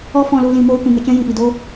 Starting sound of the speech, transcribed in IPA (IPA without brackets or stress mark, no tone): ɔ